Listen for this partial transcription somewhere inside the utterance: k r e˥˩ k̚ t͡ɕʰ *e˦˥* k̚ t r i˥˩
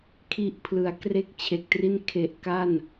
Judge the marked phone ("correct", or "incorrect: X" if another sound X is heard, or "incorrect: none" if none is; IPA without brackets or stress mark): incorrect: e˨˩